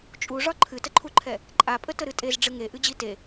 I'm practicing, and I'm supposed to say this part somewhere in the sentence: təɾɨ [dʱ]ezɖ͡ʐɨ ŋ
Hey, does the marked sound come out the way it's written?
no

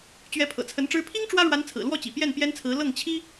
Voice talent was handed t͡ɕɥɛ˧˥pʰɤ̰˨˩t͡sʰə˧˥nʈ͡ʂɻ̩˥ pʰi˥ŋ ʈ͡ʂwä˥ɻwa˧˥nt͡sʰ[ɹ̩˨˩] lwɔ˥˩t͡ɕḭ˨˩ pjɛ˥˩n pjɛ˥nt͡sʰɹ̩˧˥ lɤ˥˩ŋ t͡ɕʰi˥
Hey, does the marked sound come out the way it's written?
yes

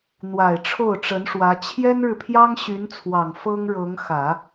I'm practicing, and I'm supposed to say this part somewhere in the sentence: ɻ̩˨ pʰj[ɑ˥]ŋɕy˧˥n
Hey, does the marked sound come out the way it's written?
yes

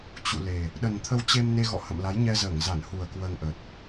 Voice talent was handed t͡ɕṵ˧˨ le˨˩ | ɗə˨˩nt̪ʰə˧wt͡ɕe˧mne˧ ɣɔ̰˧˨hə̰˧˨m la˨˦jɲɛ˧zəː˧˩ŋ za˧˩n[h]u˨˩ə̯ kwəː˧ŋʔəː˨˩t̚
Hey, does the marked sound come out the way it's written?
yes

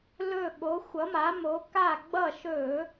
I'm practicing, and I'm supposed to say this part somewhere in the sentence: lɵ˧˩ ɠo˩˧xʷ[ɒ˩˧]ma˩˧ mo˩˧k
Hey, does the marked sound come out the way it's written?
no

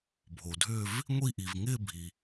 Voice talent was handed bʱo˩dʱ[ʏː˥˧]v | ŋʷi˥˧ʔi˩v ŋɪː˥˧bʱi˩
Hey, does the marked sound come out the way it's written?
yes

